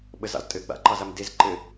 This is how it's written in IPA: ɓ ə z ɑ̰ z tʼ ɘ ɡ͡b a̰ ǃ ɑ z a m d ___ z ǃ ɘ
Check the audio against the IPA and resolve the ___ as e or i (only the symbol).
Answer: e